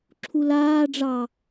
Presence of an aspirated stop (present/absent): present